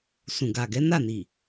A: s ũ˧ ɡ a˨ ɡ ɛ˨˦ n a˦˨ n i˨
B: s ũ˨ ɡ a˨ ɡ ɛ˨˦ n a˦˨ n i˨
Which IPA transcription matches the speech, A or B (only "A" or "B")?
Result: B